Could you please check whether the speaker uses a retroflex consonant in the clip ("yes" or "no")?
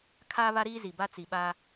no